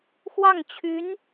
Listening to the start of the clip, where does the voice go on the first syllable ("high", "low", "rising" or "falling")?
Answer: falling